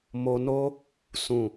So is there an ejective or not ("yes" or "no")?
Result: no